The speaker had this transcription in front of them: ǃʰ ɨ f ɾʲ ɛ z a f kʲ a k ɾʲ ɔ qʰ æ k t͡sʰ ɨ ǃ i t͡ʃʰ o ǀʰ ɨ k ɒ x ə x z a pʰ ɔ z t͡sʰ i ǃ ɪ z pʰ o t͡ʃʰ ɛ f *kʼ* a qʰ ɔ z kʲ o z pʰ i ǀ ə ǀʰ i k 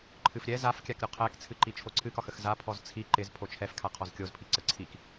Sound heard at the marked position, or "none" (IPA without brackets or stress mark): kʰ